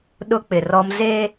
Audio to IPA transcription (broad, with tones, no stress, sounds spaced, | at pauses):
ɗ ʊ˦ k͡p ɪ˨ r ɔ˦ m z e˦